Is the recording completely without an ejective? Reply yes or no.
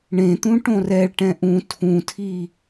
yes